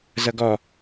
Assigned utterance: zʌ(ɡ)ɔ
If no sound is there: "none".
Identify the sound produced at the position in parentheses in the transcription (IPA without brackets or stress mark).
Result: ɡ